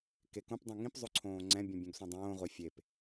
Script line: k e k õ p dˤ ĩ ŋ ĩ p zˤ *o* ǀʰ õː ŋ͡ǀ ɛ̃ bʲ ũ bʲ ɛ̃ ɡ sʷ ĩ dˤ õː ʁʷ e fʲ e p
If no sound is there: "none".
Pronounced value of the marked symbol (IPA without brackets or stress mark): o